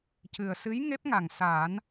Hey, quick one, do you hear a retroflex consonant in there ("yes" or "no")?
no